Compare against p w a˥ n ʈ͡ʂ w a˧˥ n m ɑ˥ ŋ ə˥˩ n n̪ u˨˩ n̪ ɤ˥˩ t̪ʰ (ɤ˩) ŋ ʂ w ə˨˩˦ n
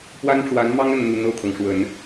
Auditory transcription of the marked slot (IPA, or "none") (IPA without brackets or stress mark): ɤ˩